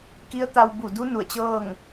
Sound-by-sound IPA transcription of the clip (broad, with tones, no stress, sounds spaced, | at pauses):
k i˧˥ ə̯ t̪ a˧ w b u˧˩ d u˧˥ n u˧˩ ə̯ t͡ɕ ɤː˥˨ ŋ